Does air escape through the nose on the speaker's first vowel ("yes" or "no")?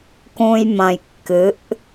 yes